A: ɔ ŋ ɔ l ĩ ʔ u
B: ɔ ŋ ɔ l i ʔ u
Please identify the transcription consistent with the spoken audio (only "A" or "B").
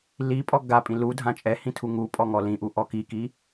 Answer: A